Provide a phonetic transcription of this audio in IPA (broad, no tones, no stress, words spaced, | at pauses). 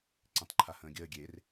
ǀĩtˤǃʰahə̃ːɡʲəː ɡʲer